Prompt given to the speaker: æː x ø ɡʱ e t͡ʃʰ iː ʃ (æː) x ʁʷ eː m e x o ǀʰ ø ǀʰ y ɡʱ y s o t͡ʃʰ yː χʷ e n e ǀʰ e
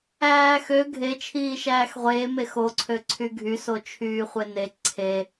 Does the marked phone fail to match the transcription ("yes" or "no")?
no